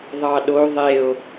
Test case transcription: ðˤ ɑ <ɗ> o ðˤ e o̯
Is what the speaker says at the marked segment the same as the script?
yes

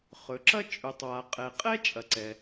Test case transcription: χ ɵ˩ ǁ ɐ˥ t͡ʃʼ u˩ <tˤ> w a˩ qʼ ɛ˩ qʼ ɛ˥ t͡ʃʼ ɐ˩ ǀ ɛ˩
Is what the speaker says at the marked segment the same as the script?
yes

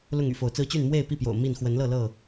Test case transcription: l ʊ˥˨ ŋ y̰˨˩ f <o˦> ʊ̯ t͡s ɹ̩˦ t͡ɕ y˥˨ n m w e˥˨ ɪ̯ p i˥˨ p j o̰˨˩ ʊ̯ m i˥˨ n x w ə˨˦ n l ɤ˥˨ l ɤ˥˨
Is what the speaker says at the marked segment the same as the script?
no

